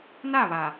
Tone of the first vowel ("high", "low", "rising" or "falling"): falling